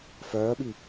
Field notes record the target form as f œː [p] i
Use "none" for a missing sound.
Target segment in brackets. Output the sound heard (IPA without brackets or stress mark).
ɓ